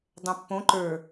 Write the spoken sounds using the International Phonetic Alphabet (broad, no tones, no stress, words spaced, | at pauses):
dˤɛ̃pːõ ǃə˞